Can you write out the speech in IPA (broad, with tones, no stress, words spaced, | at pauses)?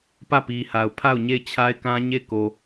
pä˦˨pi˨ha˨ʊ̯ pʰa˦˨ʊ̯ ɲe˦˨ɪ̯t͡ɕʰa˦ɪ̯kã˦ɲe˦˨ɪ̯ ko˨